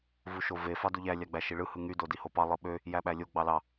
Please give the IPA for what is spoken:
v u ʃ o v e f ɑ d u ʎ æ lʲ ɑ ɡ͡b æ ʃ i ɭ ɯ h ɯ ŋ y d o d i h o p ɑ lˠ ɯ ɓ ø | j æ ɓ æ lʲ o ɡ͡b ɑ l ɑ

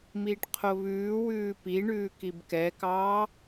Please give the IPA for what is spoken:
m iː ʈ qʰ o β ʉː w ʉː p i ɳ ʉː k i b k ɛ k ɑː

